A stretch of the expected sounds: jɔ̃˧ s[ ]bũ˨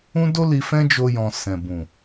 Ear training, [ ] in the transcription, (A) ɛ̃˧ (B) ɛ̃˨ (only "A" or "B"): B